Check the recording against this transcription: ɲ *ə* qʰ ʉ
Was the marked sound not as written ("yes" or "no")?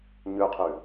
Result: yes